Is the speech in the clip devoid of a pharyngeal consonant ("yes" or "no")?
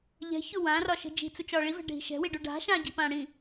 yes